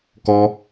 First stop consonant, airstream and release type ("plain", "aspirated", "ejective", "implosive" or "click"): plain